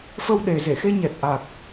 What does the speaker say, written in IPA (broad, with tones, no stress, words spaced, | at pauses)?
fə˧wɗe˨˩ze˧˩xe˧ ɲɛ˨˩t̚ʔa˨˩k̚